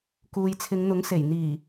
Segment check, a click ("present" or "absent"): absent